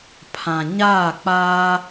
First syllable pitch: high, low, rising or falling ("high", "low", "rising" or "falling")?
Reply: low